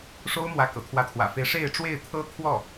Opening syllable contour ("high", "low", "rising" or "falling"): high